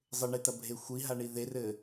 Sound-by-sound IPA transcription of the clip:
zˤɘɳetɐ bʱexʷiɦaɳi ðerɘ

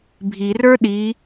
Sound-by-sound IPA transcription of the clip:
bʱirə˞ ɗi

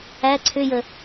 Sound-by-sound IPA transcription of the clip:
æ ǀʰʏjə

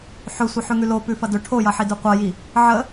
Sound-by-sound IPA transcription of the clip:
ħɵsʷə ħʉŋʉlo pʉfɐdɵ ʈʰojɐħi dʉqʷɐji | ʕə

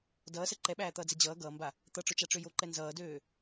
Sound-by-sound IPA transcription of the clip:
dʌːsɛ ǃɛɓæːt̪ʌːd͡zɛ d͡ʑʌː ɡʌːmba | t̪ʌʈ͡ʂʊt͡ʃaʈ͡ʂø joǃɛ nzʌːdøː

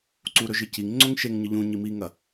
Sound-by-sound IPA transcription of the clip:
ǀuɾɵʒɨ ciŋ ŋ͡ǀoŋʃeŋɲɨ ʎũɲi miŋɐ

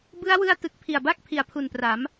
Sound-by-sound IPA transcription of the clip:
bɯ˦˥a̯wɯ˧a̯ tɯ˨˩k̚pʰi˨˩a̯ba˥˩k̚ pʰi˩˦a̯pʰu˨˩npra˩˦m

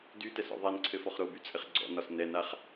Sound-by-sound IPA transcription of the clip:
dytɛsɔ̰ ðˤænǀʰɘfɔχ ɾobyt͡sʼɘχ ɡ͡ǀɔ̰nɒs nɛnaχ

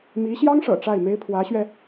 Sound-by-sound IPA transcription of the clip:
mi˧˥ɕjɑ˥ŋʂɤ̰˨˩ ʈ͡ʂa˥˩ɪ̯me˥ɪ̯ pʰwä˧˥ɕɥɛ˧

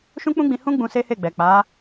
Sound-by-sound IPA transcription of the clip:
ʃũ˦k͡pũ˦ɡ͡bĩ˧hũ˦ ɡ͡bũ˧se˦he˦˨ɡ͡bɛ˨ k͡pa˨˦

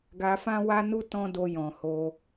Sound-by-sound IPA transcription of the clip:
ɡa˧fã˦wa˦nu˦ tɔ̃˦do˧jɔ̃˨ ho˧

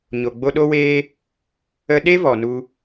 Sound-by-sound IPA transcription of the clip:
ɲo˨ɡ͡bo˧ɗo˦weː˦ | ə˧ɗe˦vɔ˨ nu˧

